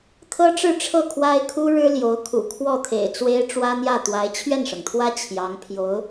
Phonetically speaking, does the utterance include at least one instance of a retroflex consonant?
yes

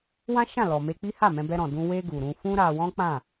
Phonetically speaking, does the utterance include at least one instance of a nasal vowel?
yes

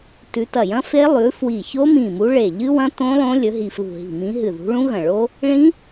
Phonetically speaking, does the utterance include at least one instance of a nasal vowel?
yes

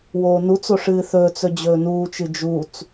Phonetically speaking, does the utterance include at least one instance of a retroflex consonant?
yes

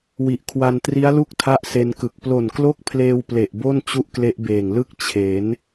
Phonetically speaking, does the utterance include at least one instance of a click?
no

